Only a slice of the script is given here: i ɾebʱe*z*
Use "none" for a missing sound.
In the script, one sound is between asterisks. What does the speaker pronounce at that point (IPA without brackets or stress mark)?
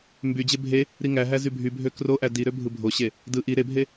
none